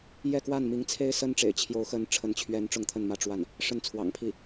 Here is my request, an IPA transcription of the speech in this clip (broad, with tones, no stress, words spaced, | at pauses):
jɛ˥˧kwa˥˩n mi˧˥ŋt͡sʰe˥ɪ̯ sə˥nʈ͡ʂḛ˨˩ɪ̯ t͡ɕʰjo˧˥ʊ̯xə˧˥n ʈ͡ʂʰə˧˥nt͡ɕʰɥɛ˧˥n ʈ͡ʂʊ˥˧ŋt̪ʰə˥˧nmä˥˧ ʈ͡ʂwa˥˩n | ʂə˥˩nt͡sʰwɑ̰˨˩ŋpʰi˥˩